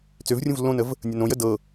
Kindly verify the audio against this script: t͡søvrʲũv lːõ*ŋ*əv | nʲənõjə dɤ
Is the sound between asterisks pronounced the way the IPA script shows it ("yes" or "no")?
no